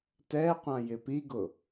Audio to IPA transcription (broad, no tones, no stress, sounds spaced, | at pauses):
t ɛ qʷ ã j ɪ p i ɡ ʊ